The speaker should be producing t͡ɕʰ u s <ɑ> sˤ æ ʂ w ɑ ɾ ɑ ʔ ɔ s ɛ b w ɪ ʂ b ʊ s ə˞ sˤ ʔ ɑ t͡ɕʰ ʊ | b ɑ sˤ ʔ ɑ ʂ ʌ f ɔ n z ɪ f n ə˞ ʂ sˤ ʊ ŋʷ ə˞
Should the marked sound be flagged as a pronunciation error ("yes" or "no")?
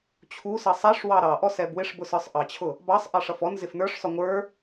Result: yes